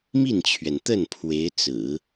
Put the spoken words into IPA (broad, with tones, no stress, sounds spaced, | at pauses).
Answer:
m i˥˩ n t͡ɕʰ ɥ ɛ˩ n t̪ ə˥˩ n pʰ w e˧˥ ɪ̯ t͡s ɹ̩˨˩˦